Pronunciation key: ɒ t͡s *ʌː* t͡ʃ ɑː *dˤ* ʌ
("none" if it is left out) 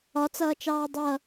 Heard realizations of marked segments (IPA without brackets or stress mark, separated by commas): ʌː, dˤ